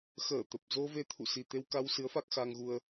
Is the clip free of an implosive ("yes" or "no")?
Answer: yes